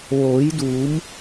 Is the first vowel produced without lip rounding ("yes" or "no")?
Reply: no